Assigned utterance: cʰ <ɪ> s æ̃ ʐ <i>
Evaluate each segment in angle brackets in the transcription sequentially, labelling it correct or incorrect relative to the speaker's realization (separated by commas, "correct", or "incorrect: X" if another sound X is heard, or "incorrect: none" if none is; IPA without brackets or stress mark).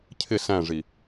correct, correct